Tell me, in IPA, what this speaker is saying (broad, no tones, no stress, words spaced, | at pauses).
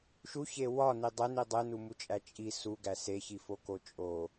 ʃuçe wɒni dˤeni dˤenumut͡ʃʼæ t͡ʃʼi suɡæs eçifoko t͡ʃʼo